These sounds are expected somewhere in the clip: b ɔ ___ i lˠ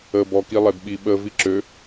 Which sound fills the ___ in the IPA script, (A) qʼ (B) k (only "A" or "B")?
B